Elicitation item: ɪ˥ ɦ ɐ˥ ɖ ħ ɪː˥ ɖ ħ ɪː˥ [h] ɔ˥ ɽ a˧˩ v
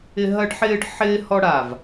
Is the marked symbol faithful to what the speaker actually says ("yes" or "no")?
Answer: yes